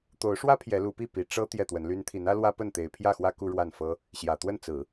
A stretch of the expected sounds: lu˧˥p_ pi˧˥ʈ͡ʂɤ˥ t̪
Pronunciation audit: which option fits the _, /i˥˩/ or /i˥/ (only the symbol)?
i˥˩